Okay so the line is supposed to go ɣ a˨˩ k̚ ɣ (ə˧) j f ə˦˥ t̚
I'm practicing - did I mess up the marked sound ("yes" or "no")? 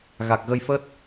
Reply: no